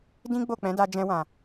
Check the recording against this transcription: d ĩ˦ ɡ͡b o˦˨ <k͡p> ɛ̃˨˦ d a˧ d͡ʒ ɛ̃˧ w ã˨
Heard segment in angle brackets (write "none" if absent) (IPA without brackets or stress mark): k͡p